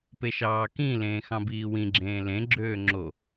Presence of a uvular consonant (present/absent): absent